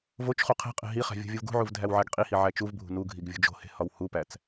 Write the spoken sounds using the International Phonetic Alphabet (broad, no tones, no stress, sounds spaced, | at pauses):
v o t͡ʃ χ u qʰ e̤ qʼ e̤ ɦ i χ æ̤ vʲ ṳ vʲ u v ɡ ṳ ʕ u v dʱ æ w ʕ æ ɡ qʼ i h i ʕ æ t͡ʃ u v bʱ ṳ n u ɡʱ i ɡ vʲ ṳ d͡ʒ o̤ h e̤ h ɒ w h u p æ t͡s